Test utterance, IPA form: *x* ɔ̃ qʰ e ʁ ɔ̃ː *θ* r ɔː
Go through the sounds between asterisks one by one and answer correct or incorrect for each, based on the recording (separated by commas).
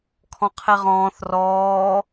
incorrect, correct